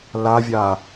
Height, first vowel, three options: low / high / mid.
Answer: low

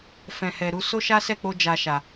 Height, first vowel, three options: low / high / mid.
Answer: mid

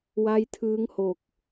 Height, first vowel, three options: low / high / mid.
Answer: low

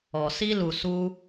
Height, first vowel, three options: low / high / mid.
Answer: mid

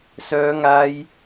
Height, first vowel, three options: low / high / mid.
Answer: mid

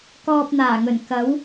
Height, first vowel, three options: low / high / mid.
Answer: mid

